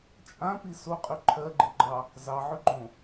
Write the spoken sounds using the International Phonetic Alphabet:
t͡ʃʼ ã p i s o qʼ y ǃʰ ɜ ɡ͡ǃ i ɡ͡ǃ ɑ | z ɑ ʕ ʏ ɡ͡ǃ õ

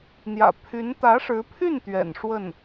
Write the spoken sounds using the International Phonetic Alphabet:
n̪ j ä̰˨˩ pʰ y˧˥ n t̪ ä˧˥ ʂ ɻ̩˧˥ pʰ y˥˩ n t̪ ɥ ɛ̰˨˩ n ʂ w ə˥˩ n

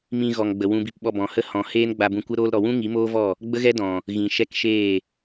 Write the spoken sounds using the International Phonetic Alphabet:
m ĩ˧ ɣ ɔ˨ ŋ ɡ͡b ə˨ w ũ˧ b i˧ p ɓ ɔ˧ b ɔ̃˨ h ə˦ h ɔ̃˨ h eː˦ n ɡ͡b a˧ b ũ˧ kʷ ə˦ ɾ oː˧ l ɾ ɔ˨ w ũ˦ ŋ i˨˦ m oː˦ v ɔ˦˨ | ɡ͡b ə˦ ɣ ɛ˦ d ɔ̃˨ | ɣ ĩ˨ ʃ ɛ˦ k ʃ eː˦˨

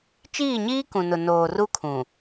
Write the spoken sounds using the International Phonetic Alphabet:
t͡ʃ iː˦˨ ɲ iː˦ k ũ˨ n ʊ˨ n oː˨ r u˦ kʰ ũ˨

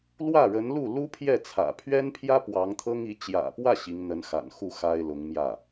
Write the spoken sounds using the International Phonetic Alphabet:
l w ä˥˩ ɻ ə˧˥ n l u˥˩ l u˥ pʰ j ɛ˥˩ t͡sʰ ä̰˨˩ pʰ ɥ ɛ˥ n pʰ j ä˥ p w ɑ˧˥ ŋ t̪ʰ ɤ˥ ŋ i˧˥ t͡ɕ j ä̰˨˩ p w ä˥˩ ɕ i˧˥ ŋ n̪ ə˧˥ n x a̰˨˩ n x u˥˩ x a˥ ɪ̯ l ʊ˧˥ ŋ m j ä˥˩

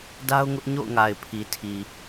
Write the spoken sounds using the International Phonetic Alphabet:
d a˦ ʊ̯ ŋ ʊ˦ ʔ ɲ o̰˦˨ ʊ̯ ŋ a˨ ɪ̯ pʰ i˨ tʰ i˨

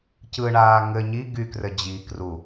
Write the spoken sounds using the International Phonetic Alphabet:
c ɯ ɳ aː ŋ ɘ ɲ i ɡ y k r ɘ d͡ʑ i k r u

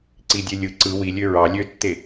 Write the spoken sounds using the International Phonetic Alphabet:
ǀ i dʲ e lʲ ɯ ǀ ɯ w i lʲ ø ɹ ɑ lʲ ø tː e

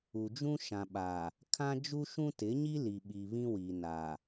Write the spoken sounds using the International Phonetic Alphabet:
u˨ d͡ʒ ũ˦ ʃ ã˨ ɓ a˨ | kʰ ã˦ d͡ʒ u˦ ʃ ũ˦ t ɪ˨˦ ɲ i˦ l i˨ ɓ i˨ β ĩ˦ w i˨ n a˨

